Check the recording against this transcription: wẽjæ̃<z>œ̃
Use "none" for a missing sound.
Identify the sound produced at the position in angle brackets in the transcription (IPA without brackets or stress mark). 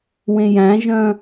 ʒ